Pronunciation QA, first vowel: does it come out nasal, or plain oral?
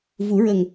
oral